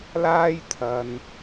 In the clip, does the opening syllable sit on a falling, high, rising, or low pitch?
high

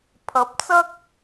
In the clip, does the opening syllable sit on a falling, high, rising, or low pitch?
rising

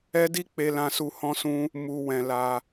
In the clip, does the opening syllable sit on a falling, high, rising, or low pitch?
high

